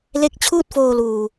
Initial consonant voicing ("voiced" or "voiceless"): voiced